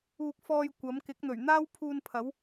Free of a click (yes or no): yes